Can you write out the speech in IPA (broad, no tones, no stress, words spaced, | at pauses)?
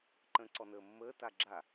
ǃə̃ːǀɔnəːmːəː taɡ͡ǁa